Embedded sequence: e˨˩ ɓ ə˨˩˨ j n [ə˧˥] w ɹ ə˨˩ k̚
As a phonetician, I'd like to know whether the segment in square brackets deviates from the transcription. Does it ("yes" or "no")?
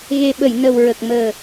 yes